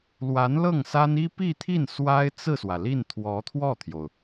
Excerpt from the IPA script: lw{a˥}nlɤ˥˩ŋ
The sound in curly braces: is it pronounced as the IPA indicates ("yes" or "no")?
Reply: no